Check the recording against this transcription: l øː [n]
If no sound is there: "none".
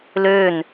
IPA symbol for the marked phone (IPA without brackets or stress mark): n